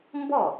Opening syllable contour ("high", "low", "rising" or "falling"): falling